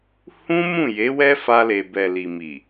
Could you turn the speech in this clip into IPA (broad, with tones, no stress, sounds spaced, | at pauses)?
h ũ˦ m ũ˦˨ j e˨˦ w ɛ˦ f a˧ l e˨ b ɛ˨ l i˨ m i˨